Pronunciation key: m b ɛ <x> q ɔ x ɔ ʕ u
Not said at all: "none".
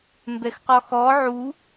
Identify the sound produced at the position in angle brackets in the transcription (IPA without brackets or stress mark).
x